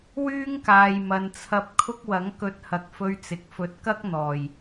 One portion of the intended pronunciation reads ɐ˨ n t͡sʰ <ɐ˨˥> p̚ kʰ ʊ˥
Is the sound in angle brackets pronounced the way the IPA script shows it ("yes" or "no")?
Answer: no